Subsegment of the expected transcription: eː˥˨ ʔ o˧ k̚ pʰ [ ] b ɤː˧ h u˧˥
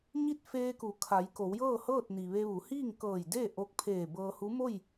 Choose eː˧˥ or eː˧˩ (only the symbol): eː˧˩